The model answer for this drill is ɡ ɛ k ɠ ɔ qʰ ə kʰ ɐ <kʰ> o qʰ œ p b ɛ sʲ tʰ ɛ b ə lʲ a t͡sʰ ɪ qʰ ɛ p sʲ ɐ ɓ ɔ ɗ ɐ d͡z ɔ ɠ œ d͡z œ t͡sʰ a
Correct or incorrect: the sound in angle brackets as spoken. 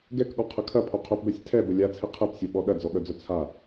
incorrect: pʰ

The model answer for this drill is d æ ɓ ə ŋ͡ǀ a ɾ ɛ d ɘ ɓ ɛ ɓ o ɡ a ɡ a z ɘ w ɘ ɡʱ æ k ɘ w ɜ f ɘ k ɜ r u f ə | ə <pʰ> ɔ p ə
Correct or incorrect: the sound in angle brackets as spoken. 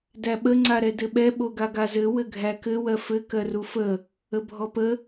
incorrect: bʱ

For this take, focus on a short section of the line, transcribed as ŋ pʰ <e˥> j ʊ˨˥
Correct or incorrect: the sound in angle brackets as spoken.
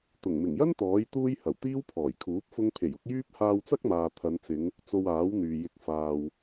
incorrect: e˨˩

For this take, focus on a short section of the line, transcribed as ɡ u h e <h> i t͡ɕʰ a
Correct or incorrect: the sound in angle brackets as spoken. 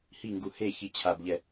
incorrect: ç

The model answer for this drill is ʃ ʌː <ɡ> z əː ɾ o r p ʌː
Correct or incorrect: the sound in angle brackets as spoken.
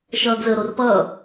correct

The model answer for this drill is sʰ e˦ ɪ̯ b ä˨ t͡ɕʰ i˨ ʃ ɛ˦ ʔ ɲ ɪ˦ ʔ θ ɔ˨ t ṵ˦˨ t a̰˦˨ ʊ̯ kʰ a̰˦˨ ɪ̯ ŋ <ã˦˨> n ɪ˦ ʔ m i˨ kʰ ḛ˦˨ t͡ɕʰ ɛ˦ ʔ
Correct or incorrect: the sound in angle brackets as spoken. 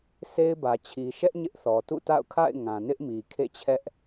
incorrect: ã˨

